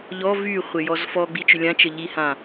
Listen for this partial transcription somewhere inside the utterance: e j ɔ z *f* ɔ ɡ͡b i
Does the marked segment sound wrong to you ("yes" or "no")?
no